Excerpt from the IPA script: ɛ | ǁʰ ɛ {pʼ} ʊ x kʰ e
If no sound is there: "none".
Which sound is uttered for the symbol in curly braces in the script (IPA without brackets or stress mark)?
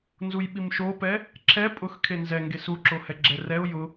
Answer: pʼ